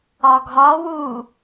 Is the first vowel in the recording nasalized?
no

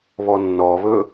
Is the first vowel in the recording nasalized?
no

